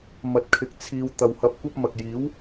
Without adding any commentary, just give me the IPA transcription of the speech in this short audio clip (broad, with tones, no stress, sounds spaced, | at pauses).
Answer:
m ɐ˨ t̚ kʰ ɪ˨ k̚ t͡sʰ iː˧ w t̪ ɐ˨ w h ɐ˧ p̚ kʷ ɐ˥ p̚ m ɐ˨ k̚ j iː˨˥ w